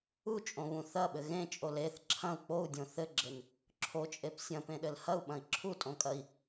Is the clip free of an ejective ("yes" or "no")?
no